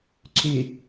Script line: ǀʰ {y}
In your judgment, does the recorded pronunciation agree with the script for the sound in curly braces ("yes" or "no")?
yes